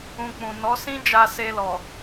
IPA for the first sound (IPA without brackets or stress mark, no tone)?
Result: ũ